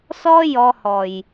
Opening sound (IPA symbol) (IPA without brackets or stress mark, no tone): s